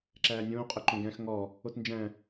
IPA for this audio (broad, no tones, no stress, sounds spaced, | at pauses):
ǁ æː nʲ õː qʼ ɵ ǃ õ ɡ æ̃ x ŋ ɔ | o t n d͡ʒ æ̃